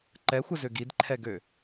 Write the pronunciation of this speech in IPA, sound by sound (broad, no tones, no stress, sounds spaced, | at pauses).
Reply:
ǃ ɛ xʷ ə z ø ɡ i d ǃʰ ɛ ɡ ø